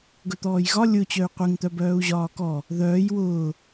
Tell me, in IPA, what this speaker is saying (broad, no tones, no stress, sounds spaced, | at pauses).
ɡ ɵ t̪ ɔː j ɣ ɒ lʲ ʊ t͡ɕ œ y̯ qʷ e ŋ t̪ œ b œː u̯ ʑ ɒː k ɔ | ð œː j w ʊː